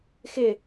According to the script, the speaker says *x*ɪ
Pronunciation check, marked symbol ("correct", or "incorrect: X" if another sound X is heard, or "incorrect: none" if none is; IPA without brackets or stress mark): correct